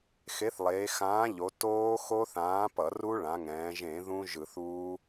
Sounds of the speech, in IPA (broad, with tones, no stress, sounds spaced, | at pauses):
x e˨˥ θ lˠ eː˩˧ x ãː˨˥ ʎ o˩˧ t oː˦˥ x o˦˥ θ ãː˨˥ p ʌ˧˩˧ r u˦˥ ɭ ã˩˧ ŋ ɛ̃ː˩˧ ʒ ẽ˧˩˧ ð ũ˦˥ ʒ ɯ˧˩˧ θ uː˦˥